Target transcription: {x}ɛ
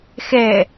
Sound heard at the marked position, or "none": x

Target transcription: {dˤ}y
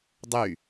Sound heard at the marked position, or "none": dˤ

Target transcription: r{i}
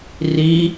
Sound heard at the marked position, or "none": i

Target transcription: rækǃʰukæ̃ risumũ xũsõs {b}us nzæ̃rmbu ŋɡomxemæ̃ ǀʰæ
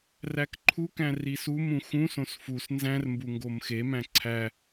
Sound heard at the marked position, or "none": f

